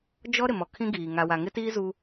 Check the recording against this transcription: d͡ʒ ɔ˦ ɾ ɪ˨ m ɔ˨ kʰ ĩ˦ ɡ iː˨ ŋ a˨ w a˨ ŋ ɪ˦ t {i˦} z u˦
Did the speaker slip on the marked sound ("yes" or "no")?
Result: yes